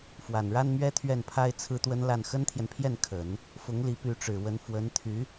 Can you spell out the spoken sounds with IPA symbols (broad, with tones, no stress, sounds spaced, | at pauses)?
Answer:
f w a˨˩ n ɻ a˥ n m ɥ ɛ˥ t̪ʰ ɥ ɛ˥˩ n pʰ a˥ ɪ̯ t͡sʰ ɹ̩˥ t̪ w ə˥ n l a˥˩ n x ə˥ n t̪ʰ j ɛ˨ n pʰ j ɛ˥˩ n kʰ ə˨˩˦ n | f ʊ˧˥ ŋ l i˧˥ p y˧˥ ʈ͡ʂ ɻ̩˨˩ w ə˧˥ n f w ə˧˥ n t̪ʰ y˧˥